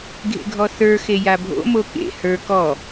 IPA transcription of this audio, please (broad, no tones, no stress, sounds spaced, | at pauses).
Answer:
ɡʱ ḛ ɡʱ ɔ θ ə˞ x e j a bʱ o̰ m o k ḛ h ə˞ k ɔ